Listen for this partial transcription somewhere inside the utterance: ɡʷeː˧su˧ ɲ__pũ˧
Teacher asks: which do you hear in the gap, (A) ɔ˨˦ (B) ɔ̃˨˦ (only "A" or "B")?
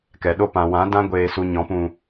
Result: B